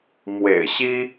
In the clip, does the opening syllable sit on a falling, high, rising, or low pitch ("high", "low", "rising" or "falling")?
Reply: low